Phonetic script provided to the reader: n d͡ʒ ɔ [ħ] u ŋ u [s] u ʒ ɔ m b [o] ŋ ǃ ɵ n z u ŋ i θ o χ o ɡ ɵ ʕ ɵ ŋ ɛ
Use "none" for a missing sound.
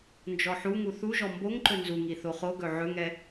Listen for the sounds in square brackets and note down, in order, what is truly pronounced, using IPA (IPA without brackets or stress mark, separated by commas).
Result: ħ, θ, o